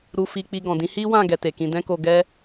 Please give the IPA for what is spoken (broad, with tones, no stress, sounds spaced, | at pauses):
ɾ u˧ f i˧ k͡p i˧ ɡ ɔ̃˨ d ĩ˨˦ h i˦ w ã˦˨ ɡ ɛ˨ t e˨ k ĩ˧ d ɛ̃˦ k o˧ ɡ ɛ˦